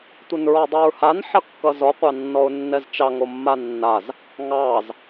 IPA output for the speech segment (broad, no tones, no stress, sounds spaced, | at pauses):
tʷ ʌ n ɹ ɔ dˤ i ɹ h a n ħ ʌ kː ʌ z ɔ qʷ ɑ nː ɔ ʊ̯ nː ɛ z t͡ʃ ɑ ŋ o mː a nː a z | ŋ ɑ z